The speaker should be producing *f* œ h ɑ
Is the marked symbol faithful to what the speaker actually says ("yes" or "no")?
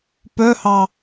no